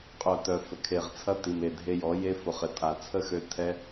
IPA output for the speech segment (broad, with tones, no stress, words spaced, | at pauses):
qʼœ˦˨tœ˧ fə˨kʰe˨ʁt͡sʰɐ˦ ti˨me˨dʱe˧ jɔ˨˦je˦fʊ˨ χɪ˨tʼa˨ t͡sʰə˦˨xø˧ tʰɛ˦